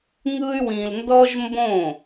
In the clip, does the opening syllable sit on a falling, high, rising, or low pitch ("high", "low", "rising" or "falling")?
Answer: high